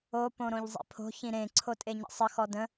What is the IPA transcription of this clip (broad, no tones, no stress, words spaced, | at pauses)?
o põɾõʎzˤḭpʰo̤ çĩɾẽ ǀʰotʼeɲə̰sˤə xɔdə̃